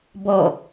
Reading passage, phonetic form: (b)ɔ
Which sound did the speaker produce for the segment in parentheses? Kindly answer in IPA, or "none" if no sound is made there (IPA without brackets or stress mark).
b